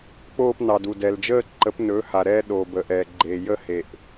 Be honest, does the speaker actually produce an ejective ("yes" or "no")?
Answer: no